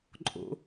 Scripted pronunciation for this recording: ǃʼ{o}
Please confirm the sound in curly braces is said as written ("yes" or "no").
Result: no